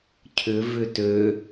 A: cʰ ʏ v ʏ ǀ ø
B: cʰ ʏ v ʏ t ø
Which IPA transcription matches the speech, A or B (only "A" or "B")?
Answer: B